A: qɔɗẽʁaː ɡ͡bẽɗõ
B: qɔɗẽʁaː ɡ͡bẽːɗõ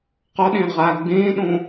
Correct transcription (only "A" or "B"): B